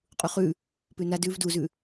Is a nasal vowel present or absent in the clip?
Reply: absent